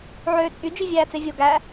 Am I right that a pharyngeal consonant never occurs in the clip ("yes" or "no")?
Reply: no